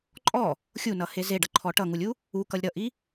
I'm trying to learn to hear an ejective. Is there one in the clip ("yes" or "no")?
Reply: yes